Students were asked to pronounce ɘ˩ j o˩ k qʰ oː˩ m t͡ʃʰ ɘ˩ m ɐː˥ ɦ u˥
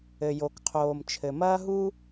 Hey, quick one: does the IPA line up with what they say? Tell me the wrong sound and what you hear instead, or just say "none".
none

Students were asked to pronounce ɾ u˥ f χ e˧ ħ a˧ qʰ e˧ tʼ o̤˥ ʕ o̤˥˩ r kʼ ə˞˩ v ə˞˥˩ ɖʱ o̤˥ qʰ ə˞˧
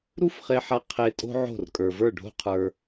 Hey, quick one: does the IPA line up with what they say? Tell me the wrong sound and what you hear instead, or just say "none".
none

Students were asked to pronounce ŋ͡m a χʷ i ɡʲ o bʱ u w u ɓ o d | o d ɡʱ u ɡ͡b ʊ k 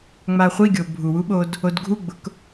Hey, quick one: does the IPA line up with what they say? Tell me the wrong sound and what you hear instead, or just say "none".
none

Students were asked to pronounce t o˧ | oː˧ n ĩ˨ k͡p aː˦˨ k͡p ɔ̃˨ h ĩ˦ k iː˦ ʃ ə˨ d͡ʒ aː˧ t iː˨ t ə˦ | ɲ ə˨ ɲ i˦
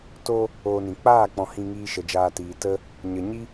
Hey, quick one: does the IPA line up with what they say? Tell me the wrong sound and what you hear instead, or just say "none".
k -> ŋ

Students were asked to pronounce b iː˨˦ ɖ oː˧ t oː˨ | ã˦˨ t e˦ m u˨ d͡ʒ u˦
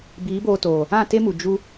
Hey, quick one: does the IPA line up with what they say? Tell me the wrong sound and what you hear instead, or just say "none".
ɖ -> b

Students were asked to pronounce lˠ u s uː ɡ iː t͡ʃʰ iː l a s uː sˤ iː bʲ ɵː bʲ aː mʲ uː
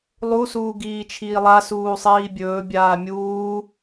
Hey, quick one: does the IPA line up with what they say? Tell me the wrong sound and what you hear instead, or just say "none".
l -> lˠ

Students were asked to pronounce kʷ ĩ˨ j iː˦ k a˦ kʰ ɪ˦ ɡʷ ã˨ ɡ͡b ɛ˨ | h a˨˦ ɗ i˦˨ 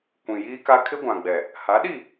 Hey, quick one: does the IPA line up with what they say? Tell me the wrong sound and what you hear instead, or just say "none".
none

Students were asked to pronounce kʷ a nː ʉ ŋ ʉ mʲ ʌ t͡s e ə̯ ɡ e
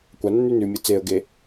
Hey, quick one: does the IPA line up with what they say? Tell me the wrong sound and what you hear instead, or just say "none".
ŋ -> n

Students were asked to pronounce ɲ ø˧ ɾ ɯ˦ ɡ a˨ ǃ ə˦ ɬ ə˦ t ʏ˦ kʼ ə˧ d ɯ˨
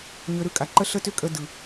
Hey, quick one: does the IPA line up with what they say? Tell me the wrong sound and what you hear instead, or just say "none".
ɡ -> kʼ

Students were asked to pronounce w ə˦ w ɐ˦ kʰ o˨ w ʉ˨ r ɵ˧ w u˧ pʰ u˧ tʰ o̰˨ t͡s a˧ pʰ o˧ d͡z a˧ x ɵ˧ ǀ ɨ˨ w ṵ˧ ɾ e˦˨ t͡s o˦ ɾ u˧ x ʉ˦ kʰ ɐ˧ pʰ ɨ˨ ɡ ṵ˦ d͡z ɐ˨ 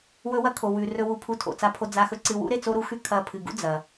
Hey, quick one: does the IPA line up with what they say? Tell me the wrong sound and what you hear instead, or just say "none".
ə˦ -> ɵ˦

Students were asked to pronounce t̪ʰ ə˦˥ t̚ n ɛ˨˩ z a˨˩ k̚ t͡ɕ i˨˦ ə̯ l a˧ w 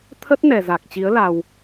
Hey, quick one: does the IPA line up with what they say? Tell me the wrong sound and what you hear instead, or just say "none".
none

